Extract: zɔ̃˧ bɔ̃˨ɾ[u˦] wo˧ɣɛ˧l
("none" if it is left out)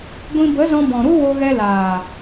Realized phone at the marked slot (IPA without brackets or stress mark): u˦